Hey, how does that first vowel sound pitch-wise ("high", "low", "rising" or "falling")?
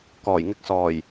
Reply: low